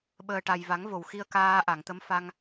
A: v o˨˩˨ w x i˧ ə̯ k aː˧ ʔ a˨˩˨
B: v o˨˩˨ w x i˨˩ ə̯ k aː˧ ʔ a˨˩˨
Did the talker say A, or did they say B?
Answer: A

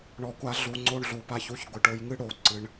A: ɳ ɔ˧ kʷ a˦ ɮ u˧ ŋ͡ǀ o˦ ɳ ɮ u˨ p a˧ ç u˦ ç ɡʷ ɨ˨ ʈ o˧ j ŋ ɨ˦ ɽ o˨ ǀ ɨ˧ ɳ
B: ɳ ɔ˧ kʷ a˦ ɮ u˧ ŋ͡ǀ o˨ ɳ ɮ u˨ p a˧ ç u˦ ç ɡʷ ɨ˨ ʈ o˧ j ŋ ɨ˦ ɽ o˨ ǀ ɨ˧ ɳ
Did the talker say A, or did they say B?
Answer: A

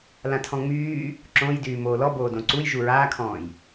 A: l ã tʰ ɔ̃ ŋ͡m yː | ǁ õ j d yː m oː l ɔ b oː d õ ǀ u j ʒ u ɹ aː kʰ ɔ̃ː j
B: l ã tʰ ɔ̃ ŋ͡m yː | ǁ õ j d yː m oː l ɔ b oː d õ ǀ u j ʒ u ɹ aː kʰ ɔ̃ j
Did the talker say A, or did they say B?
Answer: A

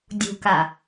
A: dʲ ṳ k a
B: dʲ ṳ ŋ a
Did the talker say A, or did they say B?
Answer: A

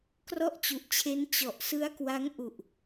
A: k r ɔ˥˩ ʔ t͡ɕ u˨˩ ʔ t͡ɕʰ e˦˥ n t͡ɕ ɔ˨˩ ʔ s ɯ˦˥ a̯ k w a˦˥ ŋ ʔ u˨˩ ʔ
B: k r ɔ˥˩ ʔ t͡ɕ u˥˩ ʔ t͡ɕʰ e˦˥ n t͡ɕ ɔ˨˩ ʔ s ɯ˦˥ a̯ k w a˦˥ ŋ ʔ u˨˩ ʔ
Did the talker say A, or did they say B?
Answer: A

